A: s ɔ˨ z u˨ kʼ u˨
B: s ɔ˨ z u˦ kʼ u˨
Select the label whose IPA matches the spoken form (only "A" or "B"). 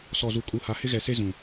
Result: A